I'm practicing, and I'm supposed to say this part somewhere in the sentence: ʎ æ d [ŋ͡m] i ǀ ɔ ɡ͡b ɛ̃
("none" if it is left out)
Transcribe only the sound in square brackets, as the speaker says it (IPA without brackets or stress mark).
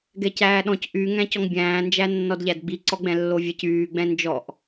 ɡ͡b